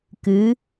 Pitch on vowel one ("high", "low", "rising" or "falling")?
rising